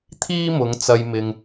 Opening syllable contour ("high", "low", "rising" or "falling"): high